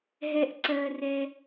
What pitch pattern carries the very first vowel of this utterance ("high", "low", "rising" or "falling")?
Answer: low